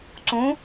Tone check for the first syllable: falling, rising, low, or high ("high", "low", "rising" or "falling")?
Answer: rising